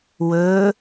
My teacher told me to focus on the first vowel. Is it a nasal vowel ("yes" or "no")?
no